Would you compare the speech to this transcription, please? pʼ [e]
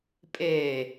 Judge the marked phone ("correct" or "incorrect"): correct